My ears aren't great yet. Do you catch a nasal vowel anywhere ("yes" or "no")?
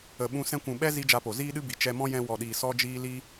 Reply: yes